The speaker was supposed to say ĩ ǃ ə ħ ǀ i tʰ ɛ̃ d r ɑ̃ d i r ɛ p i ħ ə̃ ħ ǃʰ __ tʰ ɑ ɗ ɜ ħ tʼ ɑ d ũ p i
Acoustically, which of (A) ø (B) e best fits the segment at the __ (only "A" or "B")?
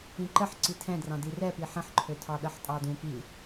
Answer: A